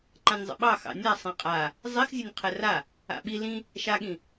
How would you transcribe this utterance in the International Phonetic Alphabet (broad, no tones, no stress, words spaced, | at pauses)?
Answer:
ǃãnʲzˤə̰ɓɑ xɑ̰nʲa sˤẽqʼa | zˤixzʲɵnʲ qʰɛra | a̰ɓi lĩ | ʃaɠĩ